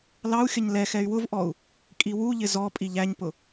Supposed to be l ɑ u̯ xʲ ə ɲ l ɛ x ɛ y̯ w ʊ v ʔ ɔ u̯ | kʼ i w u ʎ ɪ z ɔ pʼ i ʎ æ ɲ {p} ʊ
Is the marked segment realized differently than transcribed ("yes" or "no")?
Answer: no